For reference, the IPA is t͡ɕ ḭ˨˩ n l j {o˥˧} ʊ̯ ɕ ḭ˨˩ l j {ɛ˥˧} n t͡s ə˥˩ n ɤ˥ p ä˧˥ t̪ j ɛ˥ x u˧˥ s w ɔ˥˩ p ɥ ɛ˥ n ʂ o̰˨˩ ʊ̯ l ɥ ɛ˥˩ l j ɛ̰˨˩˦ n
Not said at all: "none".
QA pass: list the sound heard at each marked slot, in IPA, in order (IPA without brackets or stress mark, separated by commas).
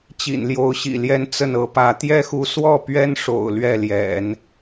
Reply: o˧˥, ɛ˥˧